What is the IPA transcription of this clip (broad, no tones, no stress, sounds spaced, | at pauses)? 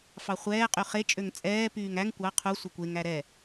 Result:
f ɑ χʷ ɛː qʼ y χ e t͡ʃʼ ø ŋ t͡sʼ ɛː p yː ŋ æ ŋ kʷ ɑ qʰ u sʷ ɛ kʷ e ŋ æ ɾ ɛ